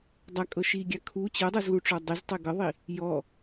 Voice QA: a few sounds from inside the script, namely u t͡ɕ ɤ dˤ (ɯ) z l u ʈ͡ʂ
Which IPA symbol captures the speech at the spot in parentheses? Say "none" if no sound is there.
ɤ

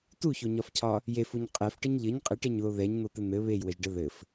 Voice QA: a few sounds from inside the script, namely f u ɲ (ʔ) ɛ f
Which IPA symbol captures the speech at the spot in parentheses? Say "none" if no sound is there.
qʼ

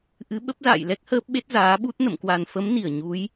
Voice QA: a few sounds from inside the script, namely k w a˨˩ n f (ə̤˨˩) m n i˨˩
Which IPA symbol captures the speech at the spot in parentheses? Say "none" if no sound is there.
ə˨˦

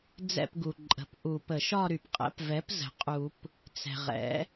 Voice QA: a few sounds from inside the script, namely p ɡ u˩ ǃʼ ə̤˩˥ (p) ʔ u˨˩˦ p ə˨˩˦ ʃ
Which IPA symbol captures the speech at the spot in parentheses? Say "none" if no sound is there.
p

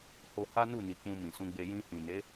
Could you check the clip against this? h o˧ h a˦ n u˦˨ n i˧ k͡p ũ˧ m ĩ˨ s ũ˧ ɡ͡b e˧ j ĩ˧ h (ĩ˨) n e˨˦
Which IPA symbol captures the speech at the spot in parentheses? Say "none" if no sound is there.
ĩ˨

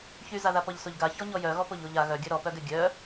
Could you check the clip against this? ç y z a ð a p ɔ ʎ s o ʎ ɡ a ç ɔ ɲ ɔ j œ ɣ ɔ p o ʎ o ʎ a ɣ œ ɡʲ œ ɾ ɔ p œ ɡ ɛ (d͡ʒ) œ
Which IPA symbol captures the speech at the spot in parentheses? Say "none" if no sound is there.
ɡʲ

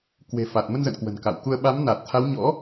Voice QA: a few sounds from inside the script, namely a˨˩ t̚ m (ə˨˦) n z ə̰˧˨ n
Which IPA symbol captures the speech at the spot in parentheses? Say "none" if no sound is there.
ə˧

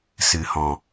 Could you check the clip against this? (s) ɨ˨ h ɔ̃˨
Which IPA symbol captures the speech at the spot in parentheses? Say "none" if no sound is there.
s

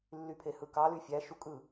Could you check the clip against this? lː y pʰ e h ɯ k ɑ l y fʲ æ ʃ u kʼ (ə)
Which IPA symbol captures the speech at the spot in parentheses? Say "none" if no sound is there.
ɯ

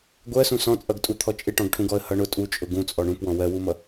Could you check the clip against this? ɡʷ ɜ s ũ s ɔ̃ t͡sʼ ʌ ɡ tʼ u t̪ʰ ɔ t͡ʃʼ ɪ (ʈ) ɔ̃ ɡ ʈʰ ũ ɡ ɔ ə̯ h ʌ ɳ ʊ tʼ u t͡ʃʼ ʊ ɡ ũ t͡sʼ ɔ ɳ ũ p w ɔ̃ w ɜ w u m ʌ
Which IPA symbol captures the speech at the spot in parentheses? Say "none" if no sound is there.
ʈ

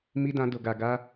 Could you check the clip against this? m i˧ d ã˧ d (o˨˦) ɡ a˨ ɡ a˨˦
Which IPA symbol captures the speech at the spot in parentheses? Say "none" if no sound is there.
o˨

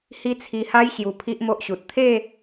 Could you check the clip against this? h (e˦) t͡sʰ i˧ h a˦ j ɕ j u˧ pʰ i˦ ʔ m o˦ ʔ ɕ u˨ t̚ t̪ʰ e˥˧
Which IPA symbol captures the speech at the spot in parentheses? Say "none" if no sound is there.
i˦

